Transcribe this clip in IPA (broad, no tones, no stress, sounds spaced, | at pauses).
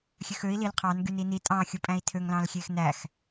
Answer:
xʲ ø x ø i̯ l i l qʰ ɑ n ɡ y n i n i tʼ ɑ̃ xʲ u pʼ æ̃ i̯ tʰ ø ŋ l ɑ̃ l xʲ e x n æ x